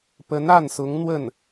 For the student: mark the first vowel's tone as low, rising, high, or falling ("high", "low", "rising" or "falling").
rising